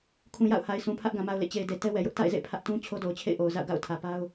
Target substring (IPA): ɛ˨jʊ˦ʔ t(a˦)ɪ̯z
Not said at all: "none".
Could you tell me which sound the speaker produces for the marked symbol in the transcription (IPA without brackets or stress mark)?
a̰˦˨